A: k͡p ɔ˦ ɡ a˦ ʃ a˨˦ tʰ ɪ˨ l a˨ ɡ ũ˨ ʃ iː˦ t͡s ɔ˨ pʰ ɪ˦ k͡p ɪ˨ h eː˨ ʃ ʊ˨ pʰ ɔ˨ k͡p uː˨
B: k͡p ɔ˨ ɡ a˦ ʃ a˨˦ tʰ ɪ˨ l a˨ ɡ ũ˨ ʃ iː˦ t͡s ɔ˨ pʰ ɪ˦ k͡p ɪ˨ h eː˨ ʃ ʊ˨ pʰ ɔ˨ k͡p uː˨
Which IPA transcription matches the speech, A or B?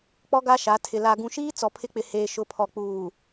A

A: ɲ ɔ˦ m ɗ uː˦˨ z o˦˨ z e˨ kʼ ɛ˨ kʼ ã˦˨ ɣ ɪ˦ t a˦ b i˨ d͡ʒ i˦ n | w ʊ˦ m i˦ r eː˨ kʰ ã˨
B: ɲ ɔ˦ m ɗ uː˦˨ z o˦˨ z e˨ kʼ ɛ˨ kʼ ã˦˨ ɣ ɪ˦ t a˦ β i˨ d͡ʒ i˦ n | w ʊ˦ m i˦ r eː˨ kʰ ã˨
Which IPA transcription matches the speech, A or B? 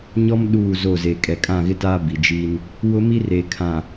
A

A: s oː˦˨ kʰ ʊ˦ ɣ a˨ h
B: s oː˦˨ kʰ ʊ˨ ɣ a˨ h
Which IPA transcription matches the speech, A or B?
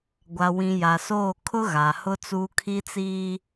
A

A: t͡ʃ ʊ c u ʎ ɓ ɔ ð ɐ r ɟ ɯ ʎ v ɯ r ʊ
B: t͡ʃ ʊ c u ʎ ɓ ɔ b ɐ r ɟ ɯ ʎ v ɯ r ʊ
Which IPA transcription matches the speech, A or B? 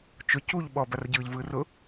B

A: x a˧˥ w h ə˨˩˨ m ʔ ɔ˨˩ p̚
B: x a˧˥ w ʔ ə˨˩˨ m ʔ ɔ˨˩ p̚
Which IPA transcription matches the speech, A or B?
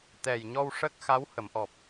A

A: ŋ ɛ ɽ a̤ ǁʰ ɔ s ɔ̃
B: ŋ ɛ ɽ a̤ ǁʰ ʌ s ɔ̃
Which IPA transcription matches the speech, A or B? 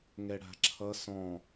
B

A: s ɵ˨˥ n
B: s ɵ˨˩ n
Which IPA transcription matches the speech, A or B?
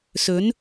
A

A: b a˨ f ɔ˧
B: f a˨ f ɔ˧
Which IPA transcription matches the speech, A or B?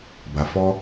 A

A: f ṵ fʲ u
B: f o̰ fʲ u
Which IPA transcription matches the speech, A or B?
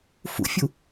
A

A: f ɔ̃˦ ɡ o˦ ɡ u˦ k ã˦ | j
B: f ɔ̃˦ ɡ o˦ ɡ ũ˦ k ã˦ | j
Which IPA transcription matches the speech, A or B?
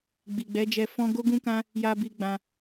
B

